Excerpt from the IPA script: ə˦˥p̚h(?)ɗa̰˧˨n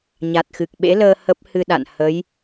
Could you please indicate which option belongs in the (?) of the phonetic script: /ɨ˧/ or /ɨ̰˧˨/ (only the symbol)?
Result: ɨ˧